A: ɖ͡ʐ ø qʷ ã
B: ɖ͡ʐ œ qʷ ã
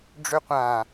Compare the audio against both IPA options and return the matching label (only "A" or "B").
A